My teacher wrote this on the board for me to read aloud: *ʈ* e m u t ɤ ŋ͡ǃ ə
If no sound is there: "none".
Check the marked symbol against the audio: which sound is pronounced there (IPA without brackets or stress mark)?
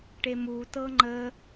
ʈ